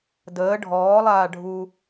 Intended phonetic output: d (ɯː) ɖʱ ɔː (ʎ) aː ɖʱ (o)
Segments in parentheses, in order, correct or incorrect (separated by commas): incorrect, incorrect, incorrect